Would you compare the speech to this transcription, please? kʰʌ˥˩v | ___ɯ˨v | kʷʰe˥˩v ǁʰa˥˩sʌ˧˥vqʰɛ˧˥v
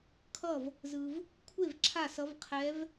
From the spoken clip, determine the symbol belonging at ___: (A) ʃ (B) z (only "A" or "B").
B